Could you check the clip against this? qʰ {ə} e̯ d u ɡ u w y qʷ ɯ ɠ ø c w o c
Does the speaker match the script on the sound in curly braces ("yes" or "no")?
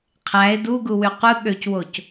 no